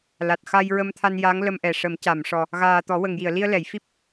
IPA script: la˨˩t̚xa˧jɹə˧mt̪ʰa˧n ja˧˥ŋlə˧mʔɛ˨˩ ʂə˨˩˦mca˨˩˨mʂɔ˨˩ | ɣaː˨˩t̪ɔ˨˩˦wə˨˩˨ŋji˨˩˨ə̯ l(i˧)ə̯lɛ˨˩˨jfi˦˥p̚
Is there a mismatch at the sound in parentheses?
no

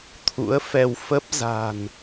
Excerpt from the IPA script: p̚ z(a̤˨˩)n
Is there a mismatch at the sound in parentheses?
no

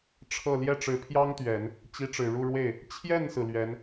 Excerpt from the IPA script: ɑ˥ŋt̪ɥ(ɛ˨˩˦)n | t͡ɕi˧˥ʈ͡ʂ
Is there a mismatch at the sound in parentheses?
no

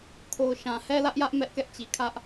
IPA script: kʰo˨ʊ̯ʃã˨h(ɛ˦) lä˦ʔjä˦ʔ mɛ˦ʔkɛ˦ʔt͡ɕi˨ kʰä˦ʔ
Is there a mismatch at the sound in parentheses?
no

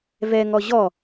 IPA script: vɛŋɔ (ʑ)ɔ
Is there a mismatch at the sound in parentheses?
no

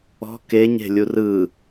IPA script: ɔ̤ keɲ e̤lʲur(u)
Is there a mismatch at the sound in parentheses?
yes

